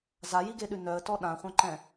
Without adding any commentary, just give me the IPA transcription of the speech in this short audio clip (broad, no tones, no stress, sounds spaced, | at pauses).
z a j i ɡ e ɗ ʉ n œ ə̯ t ɔ ɗ ã χʷ œ̃ ǃ ɛ̃